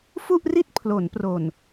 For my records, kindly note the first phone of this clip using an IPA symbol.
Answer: f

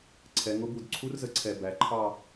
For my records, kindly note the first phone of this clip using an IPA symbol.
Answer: ǀʰ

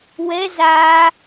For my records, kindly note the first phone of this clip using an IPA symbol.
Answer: w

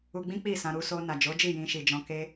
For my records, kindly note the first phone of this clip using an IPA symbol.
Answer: u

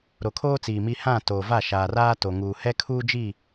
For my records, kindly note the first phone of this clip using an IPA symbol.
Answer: ɾ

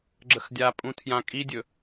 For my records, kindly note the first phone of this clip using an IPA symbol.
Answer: ɡ͡ǁ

